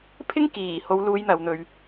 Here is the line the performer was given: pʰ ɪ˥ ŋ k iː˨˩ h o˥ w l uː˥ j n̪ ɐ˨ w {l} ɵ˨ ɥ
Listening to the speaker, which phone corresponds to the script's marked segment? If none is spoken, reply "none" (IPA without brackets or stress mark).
n̪